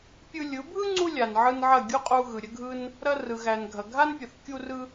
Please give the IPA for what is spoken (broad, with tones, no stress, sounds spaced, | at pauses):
pʲ ɯ˧ lʲ ɯ˨˦ bʱ ɯ˦ ŋ͡ǀ u˧ lʲ a˨ n ʕ ɯ˧ n ʕ ɐ˦˨ ɡʲ u˦ qʼ u˧ ɣ ɯ˨ ɾʲ ə˦ ɡʱ ɯ˦ n | ɾ ɐ˧ r ɯ˨ ɣ æ˨ n ɡʱ ɐ˨ ɡʱ a˦ n pʲ ə˨ θ kʲ u˦ r ɯ˦